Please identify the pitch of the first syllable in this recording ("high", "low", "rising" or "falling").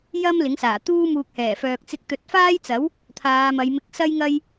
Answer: high